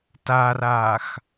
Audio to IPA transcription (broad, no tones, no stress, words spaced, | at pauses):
taraːx